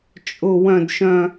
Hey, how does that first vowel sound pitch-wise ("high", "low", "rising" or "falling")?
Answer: low